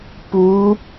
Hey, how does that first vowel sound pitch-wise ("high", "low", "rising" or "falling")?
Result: rising